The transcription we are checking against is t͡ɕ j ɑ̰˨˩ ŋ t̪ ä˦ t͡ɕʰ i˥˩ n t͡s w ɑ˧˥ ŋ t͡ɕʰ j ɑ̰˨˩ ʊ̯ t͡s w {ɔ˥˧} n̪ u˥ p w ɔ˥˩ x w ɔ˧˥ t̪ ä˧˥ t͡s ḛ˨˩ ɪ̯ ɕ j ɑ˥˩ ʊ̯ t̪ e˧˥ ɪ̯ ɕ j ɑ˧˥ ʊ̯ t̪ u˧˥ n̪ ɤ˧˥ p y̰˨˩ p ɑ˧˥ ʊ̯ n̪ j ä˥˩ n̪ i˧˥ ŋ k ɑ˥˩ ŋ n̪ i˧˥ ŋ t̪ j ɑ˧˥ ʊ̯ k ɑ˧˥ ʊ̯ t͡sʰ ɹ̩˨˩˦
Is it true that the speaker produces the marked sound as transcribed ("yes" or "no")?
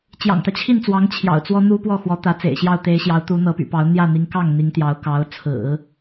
no